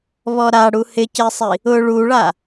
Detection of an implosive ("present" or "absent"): absent